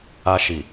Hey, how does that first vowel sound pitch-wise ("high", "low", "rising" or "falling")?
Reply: high